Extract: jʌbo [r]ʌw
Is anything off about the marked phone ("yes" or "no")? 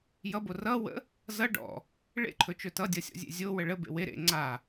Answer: no